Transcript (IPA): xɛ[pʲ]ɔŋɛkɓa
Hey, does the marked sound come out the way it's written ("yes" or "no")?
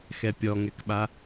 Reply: yes